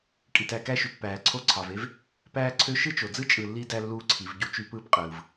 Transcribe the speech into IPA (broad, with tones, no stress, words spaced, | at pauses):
kʼi˩tæ˨kæ˥ʃy˩t pæː˩ǀʰo˦ǀʰɑ˩ve˥v | pæː˥ǀʰø˥ ʃɯ˥t͡ʃo˩d͡zɯ˥ t͡ʃʼɯ˨lːi˦ dæ˥lːuː˦ǀʰi˩v ɟu˥t͡ʃy˦pɯː˥pqʼɯː˩v